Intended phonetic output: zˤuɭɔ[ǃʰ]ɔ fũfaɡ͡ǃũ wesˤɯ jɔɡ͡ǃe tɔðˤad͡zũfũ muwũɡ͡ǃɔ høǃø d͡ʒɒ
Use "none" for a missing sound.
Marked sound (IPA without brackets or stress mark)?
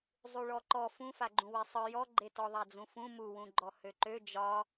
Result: ǃ